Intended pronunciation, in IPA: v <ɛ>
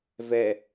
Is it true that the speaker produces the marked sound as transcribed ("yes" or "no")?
yes